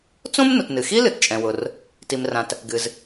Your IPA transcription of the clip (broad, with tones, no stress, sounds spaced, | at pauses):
t͡s õ˥ m n ʊ˩ t n ɨ˩ x i˥ l ɨ˩ t t͡ʃʼ ɛ̃˩ w ʊ˩ r | t i˩ m r ã˩ t | ɡ ɨ˩ z